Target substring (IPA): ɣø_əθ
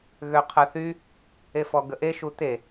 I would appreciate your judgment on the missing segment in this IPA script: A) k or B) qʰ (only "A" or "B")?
B